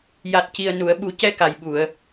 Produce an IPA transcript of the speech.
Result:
j a˨˩ t̚ c i˨˩ ə̯ n u˨˩˨ ə̯ ɓ u˨˩˦ c ɛ˧ k a˨˩ j ɓ u˨˩˨ ə̯

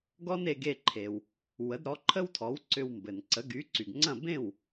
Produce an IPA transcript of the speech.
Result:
ɡ ɔ˥ n e˧ ɡ e˥˩ ǃʰ e˩ w | w ə˩˥ d ɾ ɔ˩˥ ǃʰ ə˥ w tʰ ɔ˩˥ w ǀ ʏ˧ w m b ɘ˩ n ǀ ə˩˥ ɡ y˩˥ ǀ y˩ ɡ ŋ͡ǀ ɐ̃˥˩ b ẽ˥˩ w

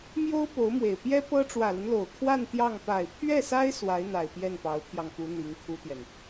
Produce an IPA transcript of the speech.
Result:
m j o˥ ʊ̯ p o˧˥ ʊ̯ m w e˨˩ ɪ̯ p j ɛ˥ p ɤ˥ ʈ͡ʂ w ä˨˩ l ə˦ n l o˨˩ ʊ̯ kʰ w a˥˧ n t̪ j ɑ˥˩ ŋ p a˨˩ ɪ̯ pʰ ɥ ɛ˥˩ s a˥ ɪ̯ s w a˧˥ ɪ̯ n̪ a˨˩ ɪ̯ p j ɛ˥˩ n p ɑ˧˥ ʊ̯ pʰ j ɑ˧ ŋ p u˧˥ n̪ i˧˥ ŋ kʰ u˥ t̪ j ɛ˨ n

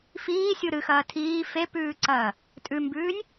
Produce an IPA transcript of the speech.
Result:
f iː sʲ u ɾ ɨ x ɐː tʰ iː f e p ʉː ǀ ɐː | tʼ ʉ m b ʉː nʲ

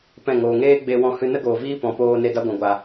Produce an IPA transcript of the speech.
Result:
p ɛ̃˦˨ ŋ oː˨ ŋ eː˦ ɡ͡b e˧ w ɔ̃˧ h ɨ˧ n ə˦ ɡ oː˨ v iː˦ p ɔ̃˨ p oː˧ n e˧ d a˦ ɡʷ ã˨ ɡʷ a˨

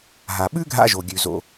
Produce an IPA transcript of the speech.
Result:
ɦ a˩ ɓ ʉ˥ ɡʱ a̰˧ ʒ o˩ ɡʲ ʉ˩ z o̰˩

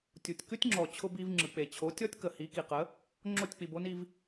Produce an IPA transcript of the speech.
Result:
tʲ u˩ tʲ k ʉ˥ tʲ ŋ͡ǁ ɔ˩ t͡ɕʰ ʊ˧ b i˧ v ŋ͡ǁ ɯ˩ k͡p e˩ t͡ɕʰ o˩˥ tʲ ɔ˥ tʲ k ə˩ h i˩˥ k i˩ q ə˩˥ | ŋ͡ǁ o˥˩ tʲ k͡p i˩ b o˥ n i˧ v

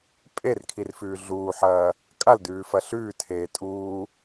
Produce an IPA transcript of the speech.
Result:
pʼ e r kʰ i r f ʉː ɮ uː ħ ɐː | kʼ a l d ʉː f ɐ ɬ ʉː tʰ eː tʼ uː

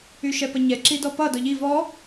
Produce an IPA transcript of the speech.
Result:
y ʃ ɛ p ʌ ɲ ɛ ǁ i d ɔ p ʌ d ɔ ʎ i v ɔ

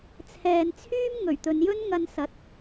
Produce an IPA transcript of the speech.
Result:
t͡sʰ ɛː˨ n t͡sʰ yː˥ m ŋ ɵ˨˩ ɥ t̪ ɵ˨˧ n j ɵ˥ n ŋ ɐ˧ n s ɐ˨˥ t̚

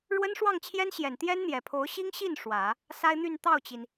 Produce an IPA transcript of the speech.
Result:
ɻ w ə˥ n ʂ w ɑ˥˩ ŋ t͡ɕʰ j ɛ˥ n ɕ j ɛ˨˩ n t̪ j ɛ˥ n n̪ j ɛ˨˩ pʰ o˧˥ ʊ̯ ɕ i˥ ŋ ɕ i˥˩ n ʂ w ä˨˩˦ | s a˥ ɪ̯ n̪ y˥˧ n t̪ ɑ˥˩ ʊ̯ t͡ɕ i˩ n

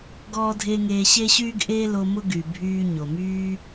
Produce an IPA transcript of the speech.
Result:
ɡ ɔː˥ dʱ eː˥ ŋ eː˦ ɕ e˥ ɕ yː˥ ɡ ʔ eː˥ l o˦ m ʊ˥ ɡ y˨ bʱ yː˦ ɲ o˩ m yː˥

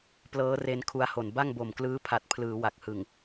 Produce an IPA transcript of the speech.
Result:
p l ɤː˦˥ r e˧ n kʰ u˧ a̯ h o˨˩ n b a˥˩ ŋ b o˨˩ m k l ɯː˦˥ pʰ a˨˩ t̚ pʰ l ɯː˩˦ w a˨˩ k̚ h ɯ˨˩ ŋ

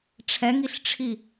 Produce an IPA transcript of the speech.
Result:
ʈ͡ʂʰ ɛ ŋ i ɬ ʈ͡ʂʰ i

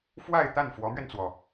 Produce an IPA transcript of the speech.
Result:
f w a˥˧ ɪ̯ t̪ a˥˩ n f w ɔ˧˥ m ɥ ɛ˧ n t͡s w ɔ˩

